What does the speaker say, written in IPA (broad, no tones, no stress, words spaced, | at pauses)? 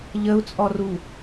ʎəu̯t͡sʼɔru